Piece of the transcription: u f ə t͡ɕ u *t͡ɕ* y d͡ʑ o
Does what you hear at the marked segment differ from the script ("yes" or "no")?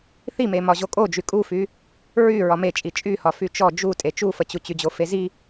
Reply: no